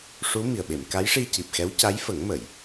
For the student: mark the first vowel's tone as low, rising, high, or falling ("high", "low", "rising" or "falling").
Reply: rising